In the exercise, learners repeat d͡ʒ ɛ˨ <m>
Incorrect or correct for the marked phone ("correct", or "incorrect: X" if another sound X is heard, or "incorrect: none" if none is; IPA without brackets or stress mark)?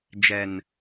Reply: incorrect: n